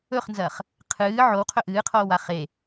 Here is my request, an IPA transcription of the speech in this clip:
ɵχnzɐχ | qʰɨː ʕowqʰɵ ʔɨːqʰoːwa χe

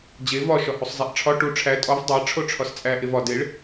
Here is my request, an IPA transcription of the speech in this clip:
d͡ʑe vɒ ʃɒhusˤzˤæʔʈ͡ʂʰɒ ʈu ʈ͡ʂʰæ tʼɒv dˤæ ʈ͡ʂʰoʈ͡ʂʰɒst͡sʼæ ʔevɒ deɭ

